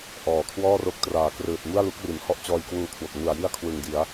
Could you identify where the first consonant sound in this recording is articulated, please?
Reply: glottal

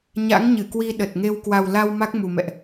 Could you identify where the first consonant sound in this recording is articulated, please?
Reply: palatal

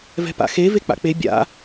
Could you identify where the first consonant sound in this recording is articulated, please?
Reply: labial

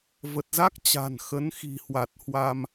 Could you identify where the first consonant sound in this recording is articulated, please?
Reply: labial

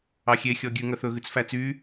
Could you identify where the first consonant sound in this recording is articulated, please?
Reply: velar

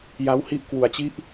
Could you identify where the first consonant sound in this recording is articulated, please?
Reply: palatal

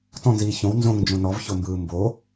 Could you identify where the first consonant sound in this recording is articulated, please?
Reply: alveolar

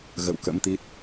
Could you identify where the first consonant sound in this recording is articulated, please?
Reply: velar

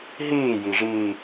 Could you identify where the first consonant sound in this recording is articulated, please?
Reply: glottal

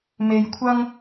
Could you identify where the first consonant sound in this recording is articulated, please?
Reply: labial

